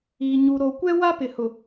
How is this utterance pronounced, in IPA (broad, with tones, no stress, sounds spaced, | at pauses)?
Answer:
iː˨ ɲ u˨ ɾ o˨ kʷ ɛ˦ w a˦ p ɪ˨ h ʊ˨